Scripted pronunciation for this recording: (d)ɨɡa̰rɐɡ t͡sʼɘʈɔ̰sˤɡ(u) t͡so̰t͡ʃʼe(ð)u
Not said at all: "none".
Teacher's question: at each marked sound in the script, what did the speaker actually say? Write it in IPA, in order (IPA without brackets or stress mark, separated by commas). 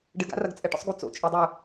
ɖ, u, dˤ